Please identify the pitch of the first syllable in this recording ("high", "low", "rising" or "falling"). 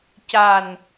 low